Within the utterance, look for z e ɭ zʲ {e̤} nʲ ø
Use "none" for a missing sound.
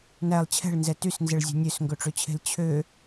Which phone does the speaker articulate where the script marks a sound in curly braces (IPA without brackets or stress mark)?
e̤